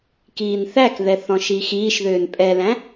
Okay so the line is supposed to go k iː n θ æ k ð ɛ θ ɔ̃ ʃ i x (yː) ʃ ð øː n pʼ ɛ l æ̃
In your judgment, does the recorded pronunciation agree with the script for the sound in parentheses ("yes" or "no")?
no